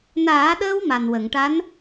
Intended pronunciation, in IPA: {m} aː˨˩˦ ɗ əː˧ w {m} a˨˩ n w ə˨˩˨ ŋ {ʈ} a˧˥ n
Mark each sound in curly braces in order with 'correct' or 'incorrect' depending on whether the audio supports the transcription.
incorrect: n, correct, correct

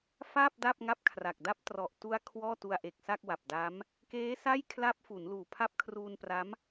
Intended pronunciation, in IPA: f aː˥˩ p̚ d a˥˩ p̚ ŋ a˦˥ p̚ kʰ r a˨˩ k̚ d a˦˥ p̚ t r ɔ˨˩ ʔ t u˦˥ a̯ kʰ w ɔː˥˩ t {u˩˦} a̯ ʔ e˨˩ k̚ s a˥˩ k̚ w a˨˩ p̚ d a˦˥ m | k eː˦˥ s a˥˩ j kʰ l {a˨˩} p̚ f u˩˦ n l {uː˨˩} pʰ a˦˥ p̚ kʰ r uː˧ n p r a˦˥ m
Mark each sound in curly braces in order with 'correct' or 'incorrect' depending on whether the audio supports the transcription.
incorrect: u˧, incorrect: a˦˥, correct

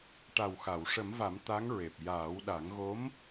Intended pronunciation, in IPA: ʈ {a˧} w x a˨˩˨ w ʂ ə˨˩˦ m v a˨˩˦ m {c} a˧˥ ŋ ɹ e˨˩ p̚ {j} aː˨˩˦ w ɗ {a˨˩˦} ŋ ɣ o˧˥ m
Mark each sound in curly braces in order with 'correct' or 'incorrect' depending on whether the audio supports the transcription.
incorrect: a˨˩, incorrect: t̪, correct, correct

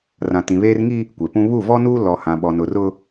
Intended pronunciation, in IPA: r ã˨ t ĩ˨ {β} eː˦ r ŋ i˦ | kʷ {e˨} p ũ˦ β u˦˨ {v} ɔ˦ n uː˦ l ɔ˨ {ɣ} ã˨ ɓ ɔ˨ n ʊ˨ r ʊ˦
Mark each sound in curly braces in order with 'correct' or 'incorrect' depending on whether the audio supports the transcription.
correct, correct, correct, incorrect: h

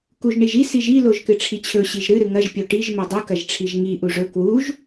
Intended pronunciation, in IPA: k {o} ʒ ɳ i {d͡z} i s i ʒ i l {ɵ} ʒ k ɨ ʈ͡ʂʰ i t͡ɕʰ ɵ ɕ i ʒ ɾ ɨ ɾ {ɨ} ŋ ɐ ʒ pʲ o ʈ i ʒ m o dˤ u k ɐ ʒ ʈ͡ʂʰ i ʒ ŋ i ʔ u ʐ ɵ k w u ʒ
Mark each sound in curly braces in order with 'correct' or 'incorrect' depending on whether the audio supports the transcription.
incorrect: u, incorrect: ʒ, incorrect: o, correct

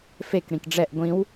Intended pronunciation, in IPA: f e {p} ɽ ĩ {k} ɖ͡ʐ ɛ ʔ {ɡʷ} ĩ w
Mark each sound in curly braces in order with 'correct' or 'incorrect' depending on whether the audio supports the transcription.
incorrect: k, correct, correct

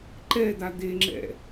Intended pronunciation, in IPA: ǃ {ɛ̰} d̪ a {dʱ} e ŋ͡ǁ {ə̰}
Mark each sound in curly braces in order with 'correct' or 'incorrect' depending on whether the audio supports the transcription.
incorrect: ɛ, incorrect: d̪, incorrect: ɛ̰

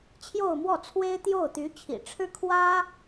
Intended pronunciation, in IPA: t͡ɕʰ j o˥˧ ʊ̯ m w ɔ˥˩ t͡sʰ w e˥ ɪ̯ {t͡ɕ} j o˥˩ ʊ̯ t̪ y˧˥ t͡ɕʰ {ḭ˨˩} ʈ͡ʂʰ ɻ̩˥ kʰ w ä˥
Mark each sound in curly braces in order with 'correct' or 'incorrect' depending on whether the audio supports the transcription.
incorrect: t̪, correct

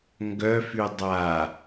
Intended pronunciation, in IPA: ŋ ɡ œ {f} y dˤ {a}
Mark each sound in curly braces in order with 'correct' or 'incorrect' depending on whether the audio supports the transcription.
correct, correct

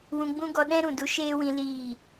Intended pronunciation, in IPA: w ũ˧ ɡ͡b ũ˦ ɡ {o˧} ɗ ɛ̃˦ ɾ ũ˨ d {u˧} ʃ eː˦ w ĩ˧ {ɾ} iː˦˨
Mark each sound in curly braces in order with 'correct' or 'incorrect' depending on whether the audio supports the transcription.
incorrect: ɔ˧, correct, incorrect: l

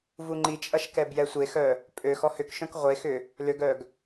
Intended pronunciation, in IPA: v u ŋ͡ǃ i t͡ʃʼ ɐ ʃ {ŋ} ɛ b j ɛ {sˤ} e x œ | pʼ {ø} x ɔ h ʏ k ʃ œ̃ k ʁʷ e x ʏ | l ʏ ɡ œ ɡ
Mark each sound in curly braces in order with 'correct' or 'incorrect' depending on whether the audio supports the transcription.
incorrect: k, incorrect: sʷ, correct

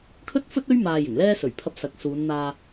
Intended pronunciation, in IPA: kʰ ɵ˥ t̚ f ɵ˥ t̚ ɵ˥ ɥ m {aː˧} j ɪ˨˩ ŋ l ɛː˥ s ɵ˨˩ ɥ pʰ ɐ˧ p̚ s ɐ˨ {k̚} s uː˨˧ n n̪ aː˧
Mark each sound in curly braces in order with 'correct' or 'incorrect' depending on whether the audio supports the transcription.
correct, correct

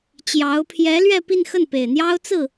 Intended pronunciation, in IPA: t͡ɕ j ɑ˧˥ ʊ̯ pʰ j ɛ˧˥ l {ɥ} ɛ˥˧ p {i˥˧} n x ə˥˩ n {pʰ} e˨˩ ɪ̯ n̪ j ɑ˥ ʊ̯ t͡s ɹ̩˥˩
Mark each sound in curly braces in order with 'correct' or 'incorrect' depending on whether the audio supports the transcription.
correct, correct, incorrect: p

